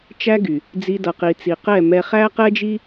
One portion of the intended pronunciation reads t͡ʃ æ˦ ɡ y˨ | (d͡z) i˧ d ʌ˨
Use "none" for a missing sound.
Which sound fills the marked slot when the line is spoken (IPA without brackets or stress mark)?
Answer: d͡z